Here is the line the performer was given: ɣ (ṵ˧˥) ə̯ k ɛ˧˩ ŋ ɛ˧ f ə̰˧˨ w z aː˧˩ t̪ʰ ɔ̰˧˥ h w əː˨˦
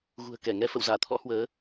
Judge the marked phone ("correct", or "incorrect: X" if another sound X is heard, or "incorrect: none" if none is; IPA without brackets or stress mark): incorrect: ṳ˨˩